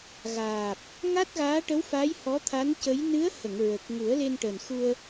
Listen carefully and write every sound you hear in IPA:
ɣ aː˨˩ p̚ | ŋ a˦˥ t̚ ɣ aː˧˥ ʈ ə˧˥ w f a˧˥ j h ɔ˧˥ t̪ʰ a˧˥ n c ə˧˥ j n ɨ˧˥ ə̯ h ə˨˩˨ ŋ ɹ ə˨˩ k̚ ŋ u˨˩˦ ə̯ l e˧ n ʈ əː˨˩ n x u˧ ə̯

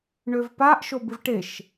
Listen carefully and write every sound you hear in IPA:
ɳ ø v p a ʔ ʃ o b ɨ v ʈ e ʃ

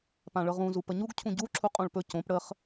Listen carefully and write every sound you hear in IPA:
p ã ɭ ɤ ʁ ũ z u p ə ɲ u ɡ cʰ ũ ɟ u ǁʰ u qʼ õ ɭ p ɵ c õ p ɽ ə χ

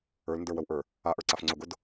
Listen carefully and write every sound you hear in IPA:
ə˞ l n d ə˞ w ə w ʔ ə˞ | a ʔ ə˞ ǀ a f ŋ͡ǀ ʊ ɡ ʊ d

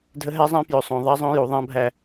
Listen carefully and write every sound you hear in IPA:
dʱ ə˦ ɦ æ˦ zˤ æ̃˦ p j ɵ˨ sˤ õ˨ ðˤ a˦ zˤ õ˦ j u˨ ðˤ ã˦ bʱ æ˦˨

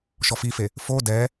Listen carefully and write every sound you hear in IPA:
ʃ ɔ f i f e | f o d ɛ

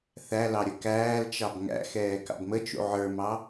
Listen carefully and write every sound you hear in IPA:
θ æ l ɑ ɾʲ ə k æː l t͡ʃ ɑ b ŋ æ̰ x ɛː k ɑ̰ b m ə t͡ʃ ṵ ʕ ə˞ m ɑ

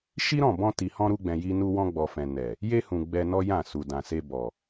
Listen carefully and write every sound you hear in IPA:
ʃ i˦ ɾ ɔ̃˦˨ b ɔ̃˧ t i˨ h ɔ̃˧ ɾ u˧ ɡ͡b ɛ̃˨ j i˧ n u˧ w ɔ̃˧ ɡ͡b ɔ˨ f ɛ̃˨ n ɛ˨ | j e˧ h ũ˨ ɡ͡b ɛ˧ n ɔ˦ j ã˦˨ s u˨ d ã˨ s e˧ b ɔ˨

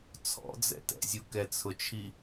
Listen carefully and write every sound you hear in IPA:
t͡sʰ ɔ̰ d͡z ɛ̰ t ɛ̰ zʲ u k ɛ t͡sʰ ʊ t͡ʃʰ i

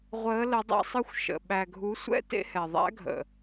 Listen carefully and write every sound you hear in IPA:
ʁʷ əː˨˦ l ə˨˦ dˤ ɛ̰˦ sˤ ɯ˦ xʷ ʃ ə̰˨ ɓ æ˨ ɡʱ u˨˦ sʷ ɛ̰˦ t ḛ˦ h ɛ˨ ðˤ æ̰˦ ɡʱ ə̰˨

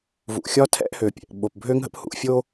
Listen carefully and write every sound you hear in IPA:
v ṵ˩ xʲ ɒ˥ tʰ ɛ̰˥ ʔ h ø˩ pʲ ɛ̰˩ ʔ ɓ o˩ p bʱ øː˦ ŋ ɦ ə̰˦ p h ṵ˨ ʔ fʲ oː˦

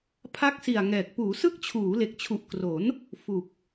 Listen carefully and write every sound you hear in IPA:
pʰ a˦˥ k̚ s i˨˩ a̯ ŋ ɛː˨˩ k̚ p uː˩˦ s ɯ˦˥ k̚ t͡ɕʰ uː˩˦ l e˨˩ k̚ t͡ɕʰ u˨˩ ʔ k r o˩˦ n | f u˨˩ k̚

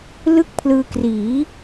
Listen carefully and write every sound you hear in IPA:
l ɯ˥˩ k̚ pʰ l ɯː˧ k r iː˩˦

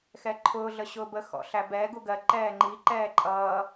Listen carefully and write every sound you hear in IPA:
x ɛ ǃʰ ʊː ɮ ə ɕ ʊː b ə x ɔ̰ ɬ æ b ɛ ɡ u ɡ ɜ ǃ ɛː ŋ͡ǃ i ǃ ɛː ǃʼ ʌː

